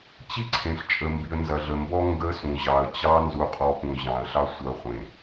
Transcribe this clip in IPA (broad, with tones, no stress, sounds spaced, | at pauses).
t͡ɕ i˦ ǀʰ ẽ˨ ɬ t͡ʃʼ ə˨ m b i˨ ə̯ n z ɐ˨ ɮ ə˨ m b ɔ˦ ŋ ɡ ə˨˦ s ũ˨ ʑ ɑ˨ ə̯ t͡ɕ ɑ˦ n z u˨ qʼ ɔ˨ p ũ˨ ʑ ɑ̃˨ ə̯ ɬ ɑ˦ sʷ ɐ˨˦ χʷ ẽ˨